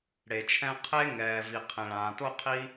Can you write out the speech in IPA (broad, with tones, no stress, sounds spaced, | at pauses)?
ɽ e˩ t͡ʃʰ ɛ̃˥ qʰ e˥ ŋ ɛː˩ v i˩ qʰ ẽ˩ ɭ ãː˩ t o˥ qʰ i˥